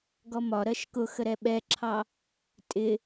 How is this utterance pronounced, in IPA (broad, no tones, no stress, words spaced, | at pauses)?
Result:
ɡɔmɒ ɾɜʃkʊxəɾɛ ɓɛǁʰɑ | tʼɪ